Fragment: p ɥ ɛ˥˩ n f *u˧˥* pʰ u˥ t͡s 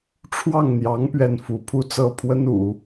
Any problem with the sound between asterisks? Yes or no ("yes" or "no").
no